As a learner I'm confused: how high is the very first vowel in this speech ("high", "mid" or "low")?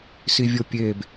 high